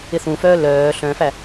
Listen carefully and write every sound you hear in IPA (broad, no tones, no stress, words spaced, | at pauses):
ɪθũfœː lœː ɬœ̃fæ